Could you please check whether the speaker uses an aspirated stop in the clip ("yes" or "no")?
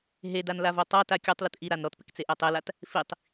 no